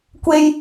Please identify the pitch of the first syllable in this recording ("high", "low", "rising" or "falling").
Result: high